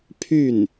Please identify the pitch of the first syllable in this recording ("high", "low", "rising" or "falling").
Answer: falling